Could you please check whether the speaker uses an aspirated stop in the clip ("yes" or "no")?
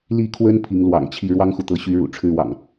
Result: yes